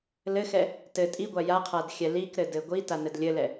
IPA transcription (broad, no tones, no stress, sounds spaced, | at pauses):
l ɘ x ɛ | t ɘ tʼ i ɡʷ a j a qʰ a d xʲ ɛ l i k ɾ ɘ d ɘ ɡʷ i t a n ɘ d lʲ ɘ l ɛ